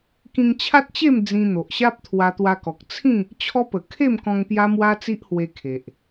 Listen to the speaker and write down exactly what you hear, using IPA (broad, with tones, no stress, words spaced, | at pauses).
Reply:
kĩ˧ŋt͡ɕʰa˦t̚t͡ɕe˥˧m d͡zĩ˧n̪o˨ʔɕa˦p̚ t̪ʰwa˧t̪wa˧kɔ˨k̚ t͡sʰĩ˥˧ | t͡ɕʰɔ˦pə˨˩ kʰe˥˧mkɔ̃˧ŋ pja˦mwa˦t͡si˦ʔhwe˧ kʰe˨ʔ